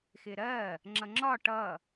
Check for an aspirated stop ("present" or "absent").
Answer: absent